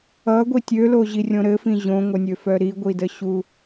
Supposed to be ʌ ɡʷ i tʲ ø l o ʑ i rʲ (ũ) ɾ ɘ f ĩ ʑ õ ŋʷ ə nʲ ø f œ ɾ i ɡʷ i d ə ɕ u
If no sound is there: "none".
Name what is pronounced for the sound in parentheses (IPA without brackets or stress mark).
õ